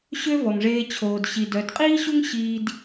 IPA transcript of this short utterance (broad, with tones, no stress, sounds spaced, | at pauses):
ɕ ø˦ v ɔ˨ ŋ ʐ eː˧ t͡ɕʰ oː˨ d ɕ i˨ d œ˨˦ d qʼ iː˦ ɕ u˦ ŋ ɕ iː˦ d